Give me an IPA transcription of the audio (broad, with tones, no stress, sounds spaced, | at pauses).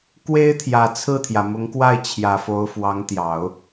k w e˥ ɪ̯ t̪ʰ j ä˨˩ t͡sʰ ɹ̩˥˩ t̪ʰ j ä˩ m ʊ˧˥ ŋ k w a˥˩ ɪ̯ t͡ɕʰ j ä˨˩ f o˧˥ ʊ̯ f w ɑ˧˥ ŋ t̪ j ɑ˨˩˦ ʊ̯